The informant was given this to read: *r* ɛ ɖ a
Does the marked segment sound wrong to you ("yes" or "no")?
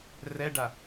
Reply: no